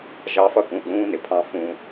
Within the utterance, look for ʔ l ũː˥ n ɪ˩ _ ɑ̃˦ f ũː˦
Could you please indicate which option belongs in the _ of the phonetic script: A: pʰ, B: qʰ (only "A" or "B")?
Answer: A